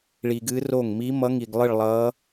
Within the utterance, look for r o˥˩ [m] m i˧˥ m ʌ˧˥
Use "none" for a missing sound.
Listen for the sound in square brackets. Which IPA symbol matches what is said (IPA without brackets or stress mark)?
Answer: ŋ